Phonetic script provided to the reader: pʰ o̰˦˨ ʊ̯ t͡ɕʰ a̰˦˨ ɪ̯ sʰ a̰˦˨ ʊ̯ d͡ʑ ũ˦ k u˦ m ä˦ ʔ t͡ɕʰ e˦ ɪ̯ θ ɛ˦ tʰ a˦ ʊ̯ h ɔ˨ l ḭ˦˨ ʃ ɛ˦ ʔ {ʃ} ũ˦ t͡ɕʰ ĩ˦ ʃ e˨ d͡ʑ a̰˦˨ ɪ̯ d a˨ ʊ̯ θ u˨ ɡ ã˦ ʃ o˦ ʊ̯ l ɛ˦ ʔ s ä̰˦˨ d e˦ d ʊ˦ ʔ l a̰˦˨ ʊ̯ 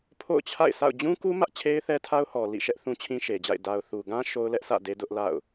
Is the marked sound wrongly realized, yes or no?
yes